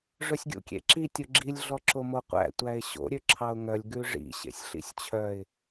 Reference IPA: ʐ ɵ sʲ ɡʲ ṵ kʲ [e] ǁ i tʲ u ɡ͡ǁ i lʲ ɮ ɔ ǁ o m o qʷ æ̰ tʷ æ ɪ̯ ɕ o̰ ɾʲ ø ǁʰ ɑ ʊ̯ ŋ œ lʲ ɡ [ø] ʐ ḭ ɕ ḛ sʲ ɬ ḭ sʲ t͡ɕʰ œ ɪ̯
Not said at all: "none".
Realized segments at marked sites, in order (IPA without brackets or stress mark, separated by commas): ḛ, ʉ